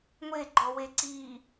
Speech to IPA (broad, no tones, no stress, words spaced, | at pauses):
ŋʷeɡ͡ǃɔwe ǀiː